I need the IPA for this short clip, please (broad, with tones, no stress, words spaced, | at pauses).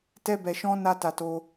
tɛ˧bɛ˨ʃɔ̃˧ na˦ta˧ to˧